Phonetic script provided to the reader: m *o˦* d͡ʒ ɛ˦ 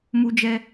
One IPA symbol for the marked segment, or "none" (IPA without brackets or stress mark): u˦